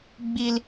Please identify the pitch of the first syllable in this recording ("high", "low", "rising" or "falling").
high